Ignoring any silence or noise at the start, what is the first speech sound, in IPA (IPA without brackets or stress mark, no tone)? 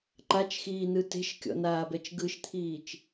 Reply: ǃ